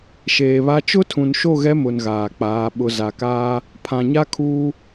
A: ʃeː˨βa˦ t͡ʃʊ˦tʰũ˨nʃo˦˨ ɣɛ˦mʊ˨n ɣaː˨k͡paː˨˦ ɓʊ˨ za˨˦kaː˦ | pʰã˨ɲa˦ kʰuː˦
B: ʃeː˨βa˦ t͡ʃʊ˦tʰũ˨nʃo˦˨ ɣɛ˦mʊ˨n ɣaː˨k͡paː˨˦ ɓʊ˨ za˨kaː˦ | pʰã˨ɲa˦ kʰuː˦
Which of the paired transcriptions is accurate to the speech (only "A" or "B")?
B